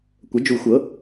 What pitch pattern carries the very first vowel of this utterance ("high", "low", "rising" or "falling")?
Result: rising